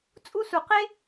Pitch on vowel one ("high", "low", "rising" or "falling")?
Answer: high